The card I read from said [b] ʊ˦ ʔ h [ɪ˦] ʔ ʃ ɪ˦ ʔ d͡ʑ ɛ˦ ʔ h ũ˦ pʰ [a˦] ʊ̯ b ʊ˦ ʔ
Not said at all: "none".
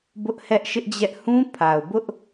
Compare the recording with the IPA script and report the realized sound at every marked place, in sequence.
b, ɛ˦, a˨

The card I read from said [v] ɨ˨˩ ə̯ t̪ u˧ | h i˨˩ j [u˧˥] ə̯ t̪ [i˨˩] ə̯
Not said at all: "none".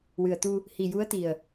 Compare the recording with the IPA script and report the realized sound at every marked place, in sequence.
w, u˧˥, i˨˩

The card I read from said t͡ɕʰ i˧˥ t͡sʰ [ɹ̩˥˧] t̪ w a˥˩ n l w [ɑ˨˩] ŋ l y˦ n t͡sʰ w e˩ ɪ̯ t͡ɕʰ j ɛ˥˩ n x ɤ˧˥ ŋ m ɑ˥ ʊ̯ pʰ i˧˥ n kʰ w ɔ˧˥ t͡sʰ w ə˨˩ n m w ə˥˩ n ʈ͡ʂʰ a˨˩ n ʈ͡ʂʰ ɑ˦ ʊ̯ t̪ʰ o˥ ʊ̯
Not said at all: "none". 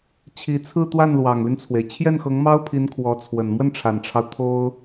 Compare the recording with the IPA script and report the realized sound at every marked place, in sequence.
ɹ̩˥˧, ɑ˨˩

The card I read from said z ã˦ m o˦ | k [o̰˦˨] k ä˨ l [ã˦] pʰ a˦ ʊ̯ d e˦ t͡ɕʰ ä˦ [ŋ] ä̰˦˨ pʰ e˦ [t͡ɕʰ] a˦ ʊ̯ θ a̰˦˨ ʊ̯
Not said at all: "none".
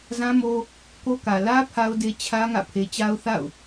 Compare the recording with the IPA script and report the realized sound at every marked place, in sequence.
o˦, ä˦, ŋ, t͡ɕ

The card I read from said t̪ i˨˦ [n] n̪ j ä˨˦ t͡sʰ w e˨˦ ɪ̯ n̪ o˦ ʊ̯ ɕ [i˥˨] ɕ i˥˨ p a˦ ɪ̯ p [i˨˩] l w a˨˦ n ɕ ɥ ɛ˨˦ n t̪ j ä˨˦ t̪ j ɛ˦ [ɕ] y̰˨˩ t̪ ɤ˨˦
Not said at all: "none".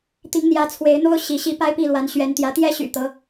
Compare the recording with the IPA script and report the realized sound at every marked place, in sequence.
ŋ, i˨˦, i˥˨, ɕ

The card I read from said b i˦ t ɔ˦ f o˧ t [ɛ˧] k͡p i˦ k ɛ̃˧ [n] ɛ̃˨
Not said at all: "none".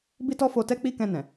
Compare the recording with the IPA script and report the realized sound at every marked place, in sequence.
ɛ˦, n

